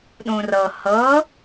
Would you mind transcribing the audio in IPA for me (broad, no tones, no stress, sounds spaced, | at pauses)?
ɗ ũ r ɤ h ɤ